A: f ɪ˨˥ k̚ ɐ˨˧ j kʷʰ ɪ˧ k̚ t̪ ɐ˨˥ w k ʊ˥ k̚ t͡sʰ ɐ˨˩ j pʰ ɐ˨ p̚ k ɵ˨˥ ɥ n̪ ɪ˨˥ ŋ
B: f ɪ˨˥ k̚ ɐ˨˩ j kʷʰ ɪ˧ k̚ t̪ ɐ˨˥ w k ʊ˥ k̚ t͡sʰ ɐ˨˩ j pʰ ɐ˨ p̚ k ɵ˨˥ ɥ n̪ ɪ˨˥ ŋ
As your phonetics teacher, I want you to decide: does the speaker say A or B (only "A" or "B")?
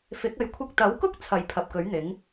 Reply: A